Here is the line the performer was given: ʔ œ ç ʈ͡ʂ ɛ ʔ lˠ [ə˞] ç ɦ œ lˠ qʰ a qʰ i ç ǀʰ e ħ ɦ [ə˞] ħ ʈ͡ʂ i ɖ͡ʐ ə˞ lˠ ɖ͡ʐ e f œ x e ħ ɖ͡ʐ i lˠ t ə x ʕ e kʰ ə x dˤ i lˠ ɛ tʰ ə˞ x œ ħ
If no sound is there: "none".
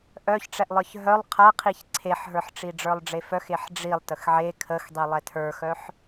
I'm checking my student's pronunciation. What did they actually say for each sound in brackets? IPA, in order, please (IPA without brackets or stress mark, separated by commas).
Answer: ə˞, ə˞